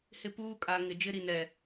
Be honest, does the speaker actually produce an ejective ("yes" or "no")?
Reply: yes